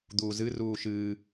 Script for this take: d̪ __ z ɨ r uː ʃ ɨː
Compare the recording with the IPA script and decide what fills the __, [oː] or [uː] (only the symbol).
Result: uː